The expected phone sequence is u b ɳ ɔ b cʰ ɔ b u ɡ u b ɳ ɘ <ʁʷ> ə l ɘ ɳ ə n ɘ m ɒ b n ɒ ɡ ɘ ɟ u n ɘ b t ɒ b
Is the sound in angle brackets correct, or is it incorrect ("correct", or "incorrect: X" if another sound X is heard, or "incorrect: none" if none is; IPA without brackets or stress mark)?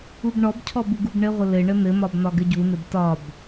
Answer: correct